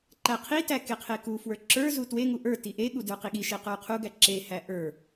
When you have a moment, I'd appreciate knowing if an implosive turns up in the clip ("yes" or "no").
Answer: yes